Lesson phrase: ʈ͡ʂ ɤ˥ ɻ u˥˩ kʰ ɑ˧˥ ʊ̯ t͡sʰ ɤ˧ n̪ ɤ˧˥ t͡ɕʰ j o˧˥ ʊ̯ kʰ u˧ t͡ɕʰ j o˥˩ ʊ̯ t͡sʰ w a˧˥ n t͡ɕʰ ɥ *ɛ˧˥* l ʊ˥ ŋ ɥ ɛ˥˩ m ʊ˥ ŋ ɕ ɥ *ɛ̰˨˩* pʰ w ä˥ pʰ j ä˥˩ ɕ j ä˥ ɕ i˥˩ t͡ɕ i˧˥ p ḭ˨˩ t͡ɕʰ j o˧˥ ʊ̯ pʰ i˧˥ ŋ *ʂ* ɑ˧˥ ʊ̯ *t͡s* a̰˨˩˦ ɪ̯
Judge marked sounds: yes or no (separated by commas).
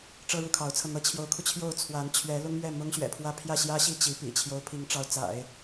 yes, yes, no, yes